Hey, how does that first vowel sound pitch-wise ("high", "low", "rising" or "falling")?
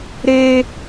high